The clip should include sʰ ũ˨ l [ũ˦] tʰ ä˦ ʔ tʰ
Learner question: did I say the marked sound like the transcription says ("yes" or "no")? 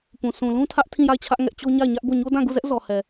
yes